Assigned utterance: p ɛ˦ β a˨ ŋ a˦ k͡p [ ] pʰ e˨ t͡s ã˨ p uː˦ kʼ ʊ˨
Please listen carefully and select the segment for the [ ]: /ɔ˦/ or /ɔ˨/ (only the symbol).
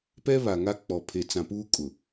ɔ˨